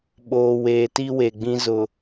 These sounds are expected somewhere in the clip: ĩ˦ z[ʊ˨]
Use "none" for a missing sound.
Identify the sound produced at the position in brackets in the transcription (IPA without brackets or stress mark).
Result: ʊ˨